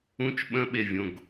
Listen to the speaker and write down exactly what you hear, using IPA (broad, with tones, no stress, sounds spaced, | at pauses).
ũ˦˥ t͡ʃ ɓ ə̃˦˥ ɓ e˨ vʲ õ˨ ɡ